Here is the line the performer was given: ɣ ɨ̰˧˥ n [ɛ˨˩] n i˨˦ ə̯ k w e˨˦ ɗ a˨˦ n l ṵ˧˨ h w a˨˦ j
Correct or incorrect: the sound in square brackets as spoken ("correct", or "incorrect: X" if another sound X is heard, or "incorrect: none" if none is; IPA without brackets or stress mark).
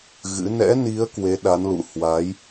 incorrect: ɛ̰˧˥